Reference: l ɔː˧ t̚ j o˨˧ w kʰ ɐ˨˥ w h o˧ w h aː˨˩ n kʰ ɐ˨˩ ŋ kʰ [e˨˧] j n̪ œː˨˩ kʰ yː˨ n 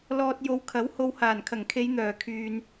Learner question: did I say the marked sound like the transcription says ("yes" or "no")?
yes